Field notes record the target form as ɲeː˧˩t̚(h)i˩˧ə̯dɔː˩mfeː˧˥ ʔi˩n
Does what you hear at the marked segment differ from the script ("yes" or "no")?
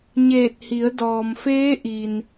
no